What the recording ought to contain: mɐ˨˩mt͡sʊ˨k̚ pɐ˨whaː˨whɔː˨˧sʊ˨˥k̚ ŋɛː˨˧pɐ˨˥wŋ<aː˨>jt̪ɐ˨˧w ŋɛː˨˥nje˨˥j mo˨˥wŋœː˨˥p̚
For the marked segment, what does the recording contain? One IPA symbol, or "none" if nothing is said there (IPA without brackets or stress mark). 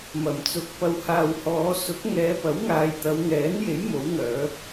aː˨